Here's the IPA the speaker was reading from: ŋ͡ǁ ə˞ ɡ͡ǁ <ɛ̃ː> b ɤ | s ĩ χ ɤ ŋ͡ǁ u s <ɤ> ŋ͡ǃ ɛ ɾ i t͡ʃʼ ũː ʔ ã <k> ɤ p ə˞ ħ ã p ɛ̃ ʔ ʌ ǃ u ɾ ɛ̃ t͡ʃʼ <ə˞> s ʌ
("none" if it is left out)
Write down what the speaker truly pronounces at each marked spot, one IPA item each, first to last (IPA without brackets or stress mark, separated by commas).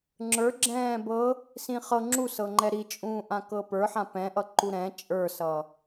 ɛ̃ː, ɤ, k, ə˞